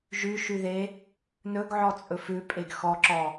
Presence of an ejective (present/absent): present